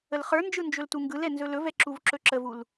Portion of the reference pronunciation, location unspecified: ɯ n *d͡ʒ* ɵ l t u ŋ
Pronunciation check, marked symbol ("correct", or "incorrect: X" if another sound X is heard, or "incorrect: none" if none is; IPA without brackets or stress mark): correct